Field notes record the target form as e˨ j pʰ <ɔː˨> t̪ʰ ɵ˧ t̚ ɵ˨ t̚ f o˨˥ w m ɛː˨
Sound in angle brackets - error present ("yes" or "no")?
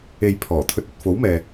yes